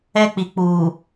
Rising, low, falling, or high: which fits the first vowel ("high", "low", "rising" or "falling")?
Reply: high